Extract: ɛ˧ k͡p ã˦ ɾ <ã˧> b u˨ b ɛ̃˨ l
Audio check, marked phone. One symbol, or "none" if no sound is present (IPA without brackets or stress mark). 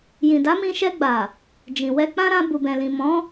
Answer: ã˧